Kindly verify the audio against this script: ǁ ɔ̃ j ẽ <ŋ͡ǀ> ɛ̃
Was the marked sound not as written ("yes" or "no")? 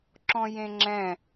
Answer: yes